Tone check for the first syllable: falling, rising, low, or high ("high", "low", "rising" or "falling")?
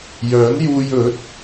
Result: rising